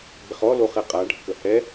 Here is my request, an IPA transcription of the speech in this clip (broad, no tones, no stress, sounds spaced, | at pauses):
b ɪ χ ɔ l o χ ɛ qʼ a ɖʱ ə k ə h ɛ